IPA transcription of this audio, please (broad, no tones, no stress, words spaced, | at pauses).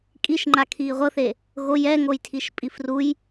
kʼiʃ ŋ͡ǃakʰiːʁʷɤθe | ɣoj ɛŋojtʰiʃ pʼifruj